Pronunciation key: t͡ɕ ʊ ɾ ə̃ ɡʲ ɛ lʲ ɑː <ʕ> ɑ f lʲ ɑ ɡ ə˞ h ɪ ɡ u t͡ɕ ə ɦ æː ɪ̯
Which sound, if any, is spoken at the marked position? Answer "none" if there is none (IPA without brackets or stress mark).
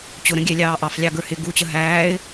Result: ʔ